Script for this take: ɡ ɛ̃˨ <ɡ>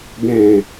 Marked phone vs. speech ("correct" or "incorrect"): incorrect